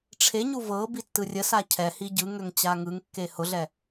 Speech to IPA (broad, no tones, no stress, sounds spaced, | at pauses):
ʈ͡ʂʰ e ɲ u v ɤ b i tː ɯ rʲ ə s a cʰ ɛ h i ɟ ɯ ŋ ø ŋ t͡ɕ a ŋ ɯ ŋ kː e h ʊ ɮ ɛ